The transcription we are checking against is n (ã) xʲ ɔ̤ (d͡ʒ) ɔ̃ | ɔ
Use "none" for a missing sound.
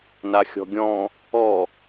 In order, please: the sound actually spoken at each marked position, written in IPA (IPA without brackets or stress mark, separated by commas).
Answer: a, ɡʲ